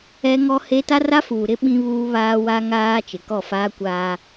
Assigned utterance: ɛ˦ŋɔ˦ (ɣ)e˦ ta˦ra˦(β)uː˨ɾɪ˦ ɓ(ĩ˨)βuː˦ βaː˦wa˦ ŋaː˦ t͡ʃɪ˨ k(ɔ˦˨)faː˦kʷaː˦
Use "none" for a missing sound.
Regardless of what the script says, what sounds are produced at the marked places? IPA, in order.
h, f, ĩ˦, ɔ˦˨

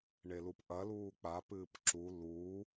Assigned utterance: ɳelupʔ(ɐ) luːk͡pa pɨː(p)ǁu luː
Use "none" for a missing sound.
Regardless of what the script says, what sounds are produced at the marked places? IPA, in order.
ɐ, p

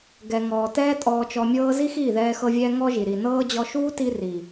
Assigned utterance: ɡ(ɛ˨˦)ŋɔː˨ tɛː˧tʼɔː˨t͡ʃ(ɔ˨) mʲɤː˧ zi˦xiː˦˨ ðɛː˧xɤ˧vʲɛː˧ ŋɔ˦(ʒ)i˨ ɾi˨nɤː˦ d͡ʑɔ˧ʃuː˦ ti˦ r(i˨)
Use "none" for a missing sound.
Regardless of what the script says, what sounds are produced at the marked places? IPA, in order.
ɛ˨, ɔ˨, ʒ, i˨

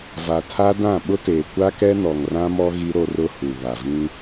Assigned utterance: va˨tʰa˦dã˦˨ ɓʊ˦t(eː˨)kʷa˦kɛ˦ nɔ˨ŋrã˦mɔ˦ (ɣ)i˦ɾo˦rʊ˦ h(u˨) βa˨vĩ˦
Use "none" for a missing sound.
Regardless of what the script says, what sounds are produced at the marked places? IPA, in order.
eː˨, ɣ, u˨

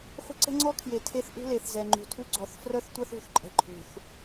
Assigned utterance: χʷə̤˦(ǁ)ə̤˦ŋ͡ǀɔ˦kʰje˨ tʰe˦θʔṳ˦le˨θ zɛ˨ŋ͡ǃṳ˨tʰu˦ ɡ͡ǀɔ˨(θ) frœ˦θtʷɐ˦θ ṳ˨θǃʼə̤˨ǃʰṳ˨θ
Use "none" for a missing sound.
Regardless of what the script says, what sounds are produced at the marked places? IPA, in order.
ǀ, θ

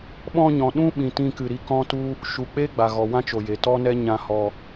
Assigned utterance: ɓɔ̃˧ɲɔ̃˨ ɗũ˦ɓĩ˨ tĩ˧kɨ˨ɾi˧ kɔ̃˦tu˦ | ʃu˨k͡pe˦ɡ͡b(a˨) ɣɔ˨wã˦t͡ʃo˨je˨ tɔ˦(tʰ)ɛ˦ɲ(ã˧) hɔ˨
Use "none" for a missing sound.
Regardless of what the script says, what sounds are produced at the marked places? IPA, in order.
a˨, n, ã˧

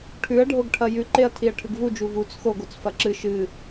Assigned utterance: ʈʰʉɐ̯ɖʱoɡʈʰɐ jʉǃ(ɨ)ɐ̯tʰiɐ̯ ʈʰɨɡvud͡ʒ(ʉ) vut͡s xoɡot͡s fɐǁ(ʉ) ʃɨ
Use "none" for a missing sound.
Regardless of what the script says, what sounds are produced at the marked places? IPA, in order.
e, u, ɨ

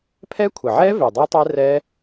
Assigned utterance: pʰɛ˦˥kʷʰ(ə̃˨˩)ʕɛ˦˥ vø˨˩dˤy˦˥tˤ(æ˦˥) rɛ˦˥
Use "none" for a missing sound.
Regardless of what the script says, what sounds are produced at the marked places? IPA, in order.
ə˨˩, ɛ˦˥

